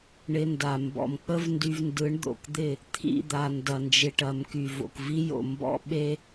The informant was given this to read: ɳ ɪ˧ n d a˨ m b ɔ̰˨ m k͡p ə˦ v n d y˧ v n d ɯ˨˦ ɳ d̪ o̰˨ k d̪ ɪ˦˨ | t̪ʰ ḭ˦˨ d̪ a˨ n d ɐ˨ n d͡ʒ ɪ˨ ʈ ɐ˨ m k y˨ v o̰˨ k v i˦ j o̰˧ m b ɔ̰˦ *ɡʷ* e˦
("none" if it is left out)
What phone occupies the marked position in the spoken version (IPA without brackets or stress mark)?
ɓ